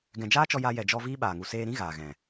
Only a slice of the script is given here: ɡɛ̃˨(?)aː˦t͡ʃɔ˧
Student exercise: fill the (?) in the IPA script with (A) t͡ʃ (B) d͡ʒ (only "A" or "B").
B